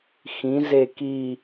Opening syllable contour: rising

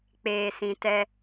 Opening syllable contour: low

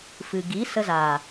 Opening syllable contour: low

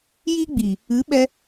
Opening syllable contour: high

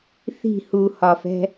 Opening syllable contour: falling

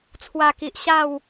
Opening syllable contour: low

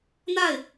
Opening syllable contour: falling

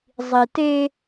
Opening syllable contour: low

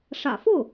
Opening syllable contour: low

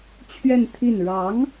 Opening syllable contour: falling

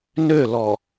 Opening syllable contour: falling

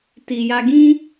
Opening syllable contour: low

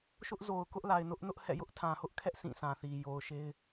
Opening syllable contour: high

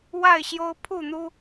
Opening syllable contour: falling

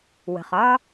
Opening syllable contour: low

